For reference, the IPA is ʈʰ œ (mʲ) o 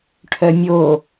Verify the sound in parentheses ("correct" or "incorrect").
correct